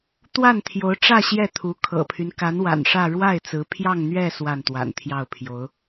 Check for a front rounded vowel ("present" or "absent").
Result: present